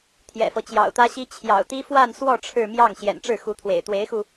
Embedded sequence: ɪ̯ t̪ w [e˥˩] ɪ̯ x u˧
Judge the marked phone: incorrect: e˧˥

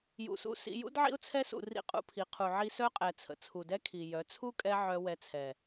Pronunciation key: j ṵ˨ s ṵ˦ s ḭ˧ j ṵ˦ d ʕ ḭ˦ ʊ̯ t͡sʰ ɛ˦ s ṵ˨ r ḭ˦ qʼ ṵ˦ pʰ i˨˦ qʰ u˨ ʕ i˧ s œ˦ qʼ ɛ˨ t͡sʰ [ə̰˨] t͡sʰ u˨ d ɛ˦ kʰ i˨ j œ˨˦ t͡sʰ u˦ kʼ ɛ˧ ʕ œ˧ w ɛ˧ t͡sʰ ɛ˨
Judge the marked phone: correct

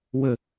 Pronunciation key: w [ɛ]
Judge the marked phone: incorrect: ə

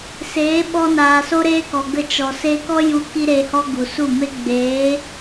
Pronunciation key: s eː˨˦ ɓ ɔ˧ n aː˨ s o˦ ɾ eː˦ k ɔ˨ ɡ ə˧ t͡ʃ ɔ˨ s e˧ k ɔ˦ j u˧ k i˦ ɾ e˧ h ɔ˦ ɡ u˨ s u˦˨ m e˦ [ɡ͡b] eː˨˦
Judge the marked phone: correct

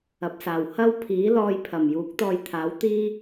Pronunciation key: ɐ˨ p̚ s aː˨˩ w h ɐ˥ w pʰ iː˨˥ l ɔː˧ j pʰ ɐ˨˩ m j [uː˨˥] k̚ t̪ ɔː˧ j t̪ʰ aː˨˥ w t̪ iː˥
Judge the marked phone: correct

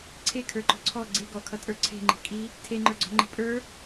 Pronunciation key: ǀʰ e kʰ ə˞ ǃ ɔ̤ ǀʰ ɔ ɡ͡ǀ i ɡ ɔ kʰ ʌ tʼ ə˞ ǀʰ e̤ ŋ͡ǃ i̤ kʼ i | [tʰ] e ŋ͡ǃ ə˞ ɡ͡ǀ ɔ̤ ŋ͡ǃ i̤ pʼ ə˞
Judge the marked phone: correct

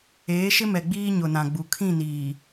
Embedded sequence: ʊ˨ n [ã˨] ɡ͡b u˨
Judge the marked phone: correct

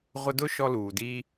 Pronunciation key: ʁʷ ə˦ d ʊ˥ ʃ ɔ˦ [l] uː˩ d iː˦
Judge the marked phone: correct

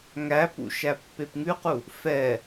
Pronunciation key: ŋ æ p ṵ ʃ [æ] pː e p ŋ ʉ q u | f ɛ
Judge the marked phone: correct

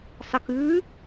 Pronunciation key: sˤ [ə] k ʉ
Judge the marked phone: correct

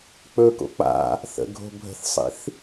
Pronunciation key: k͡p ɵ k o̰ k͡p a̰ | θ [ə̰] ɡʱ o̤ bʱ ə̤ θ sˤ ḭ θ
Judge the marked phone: correct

